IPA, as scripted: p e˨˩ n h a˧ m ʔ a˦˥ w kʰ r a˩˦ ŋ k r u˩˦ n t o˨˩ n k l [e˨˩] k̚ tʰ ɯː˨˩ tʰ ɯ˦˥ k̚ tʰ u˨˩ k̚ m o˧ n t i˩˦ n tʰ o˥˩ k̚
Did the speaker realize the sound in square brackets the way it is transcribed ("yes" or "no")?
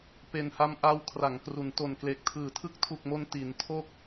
yes